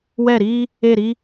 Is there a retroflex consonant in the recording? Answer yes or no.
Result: no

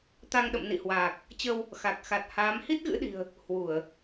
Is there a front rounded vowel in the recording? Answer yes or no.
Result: no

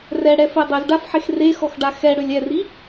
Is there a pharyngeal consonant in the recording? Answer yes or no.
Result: yes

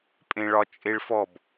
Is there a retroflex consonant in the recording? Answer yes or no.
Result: yes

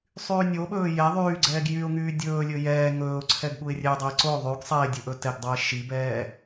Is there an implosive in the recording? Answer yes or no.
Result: yes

